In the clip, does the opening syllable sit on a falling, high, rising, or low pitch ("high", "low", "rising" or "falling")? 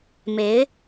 rising